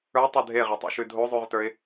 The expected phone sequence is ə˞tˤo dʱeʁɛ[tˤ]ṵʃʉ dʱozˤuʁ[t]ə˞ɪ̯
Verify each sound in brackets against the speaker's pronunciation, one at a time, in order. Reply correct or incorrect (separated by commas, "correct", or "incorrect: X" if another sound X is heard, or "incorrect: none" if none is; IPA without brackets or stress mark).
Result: correct, correct